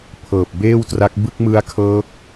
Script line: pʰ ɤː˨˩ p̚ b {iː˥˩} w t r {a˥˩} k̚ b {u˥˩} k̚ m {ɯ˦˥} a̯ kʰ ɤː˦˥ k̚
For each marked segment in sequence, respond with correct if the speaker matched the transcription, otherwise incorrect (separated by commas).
incorrect, incorrect, incorrect, correct